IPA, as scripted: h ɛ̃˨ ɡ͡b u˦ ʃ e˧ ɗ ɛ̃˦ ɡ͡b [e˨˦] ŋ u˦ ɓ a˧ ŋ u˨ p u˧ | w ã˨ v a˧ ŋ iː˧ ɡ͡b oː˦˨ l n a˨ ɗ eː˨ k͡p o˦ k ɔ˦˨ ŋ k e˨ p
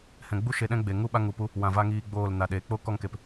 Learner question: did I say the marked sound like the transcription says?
no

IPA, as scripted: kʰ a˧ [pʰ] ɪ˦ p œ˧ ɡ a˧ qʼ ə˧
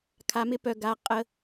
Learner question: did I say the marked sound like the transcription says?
no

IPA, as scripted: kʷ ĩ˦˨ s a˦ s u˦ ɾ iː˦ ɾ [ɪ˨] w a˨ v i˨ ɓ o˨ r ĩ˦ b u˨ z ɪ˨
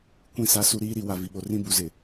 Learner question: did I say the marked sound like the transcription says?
no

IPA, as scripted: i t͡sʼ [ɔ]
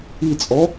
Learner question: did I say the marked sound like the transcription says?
yes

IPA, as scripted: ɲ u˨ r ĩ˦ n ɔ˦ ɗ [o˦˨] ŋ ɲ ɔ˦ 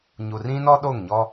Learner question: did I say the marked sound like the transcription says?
yes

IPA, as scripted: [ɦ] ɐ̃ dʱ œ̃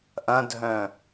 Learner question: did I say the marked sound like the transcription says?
no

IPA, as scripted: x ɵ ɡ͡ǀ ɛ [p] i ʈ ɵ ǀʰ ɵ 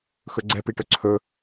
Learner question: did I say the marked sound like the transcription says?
yes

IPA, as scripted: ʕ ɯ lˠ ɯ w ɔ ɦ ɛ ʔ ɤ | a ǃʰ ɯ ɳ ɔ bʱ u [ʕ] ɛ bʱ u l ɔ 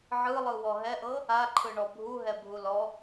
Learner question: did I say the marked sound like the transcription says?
no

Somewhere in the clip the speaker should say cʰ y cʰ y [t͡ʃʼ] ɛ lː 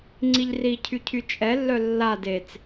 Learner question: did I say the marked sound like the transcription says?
yes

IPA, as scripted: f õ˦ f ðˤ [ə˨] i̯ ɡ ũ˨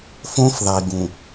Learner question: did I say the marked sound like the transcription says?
no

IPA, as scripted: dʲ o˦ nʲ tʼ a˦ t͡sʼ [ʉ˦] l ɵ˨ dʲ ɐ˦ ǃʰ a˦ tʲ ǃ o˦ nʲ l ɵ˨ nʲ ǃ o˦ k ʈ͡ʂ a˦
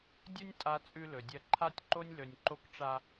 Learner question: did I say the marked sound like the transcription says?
yes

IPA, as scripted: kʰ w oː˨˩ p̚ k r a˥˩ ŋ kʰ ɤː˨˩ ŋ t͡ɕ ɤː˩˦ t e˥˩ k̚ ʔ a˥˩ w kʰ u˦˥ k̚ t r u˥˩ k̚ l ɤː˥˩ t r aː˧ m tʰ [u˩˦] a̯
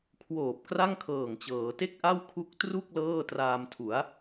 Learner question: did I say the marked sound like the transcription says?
yes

